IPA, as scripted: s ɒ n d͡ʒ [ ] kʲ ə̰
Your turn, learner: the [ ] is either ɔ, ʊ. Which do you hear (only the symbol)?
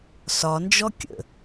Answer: ɔ